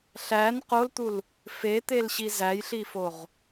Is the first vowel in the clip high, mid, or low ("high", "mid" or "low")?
low